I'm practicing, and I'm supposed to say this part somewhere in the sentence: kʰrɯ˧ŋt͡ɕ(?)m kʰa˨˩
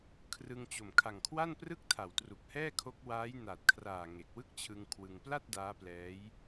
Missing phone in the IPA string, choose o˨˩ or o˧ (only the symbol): o˨˩